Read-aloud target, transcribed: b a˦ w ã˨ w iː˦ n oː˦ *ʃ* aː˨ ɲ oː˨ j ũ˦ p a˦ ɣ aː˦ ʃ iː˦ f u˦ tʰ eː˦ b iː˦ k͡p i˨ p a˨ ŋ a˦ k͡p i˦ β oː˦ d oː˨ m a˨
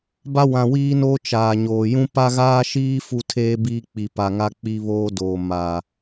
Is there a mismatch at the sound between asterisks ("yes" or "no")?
yes